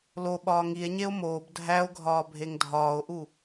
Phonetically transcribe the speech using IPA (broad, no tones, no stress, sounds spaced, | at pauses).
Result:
l o ɓ ɒː ŋ i e̯ ɲ e o̯ m oː b dʱ æ o̯ ɡʱ ɒː bʱ e ŋ dʱ ɒː o̯ ʔ u